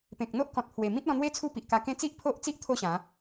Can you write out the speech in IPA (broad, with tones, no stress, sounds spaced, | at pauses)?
p ẽ˨ k̚ n̪ o˦ ʔ k ɔ̃˨ t̚ pʰ w e˨˩ m ĩ˦ t̚ l ɔ̃˧ n̪ w e˦ t͡sʰ u˦ p i˨ ʔ k a˧ k ẽ˦ t͡s i˦ ʔ pʰ o˦ ʔ t͡s i˦ ʔ t̪ʰ o˥˧ ɕ ã˨˦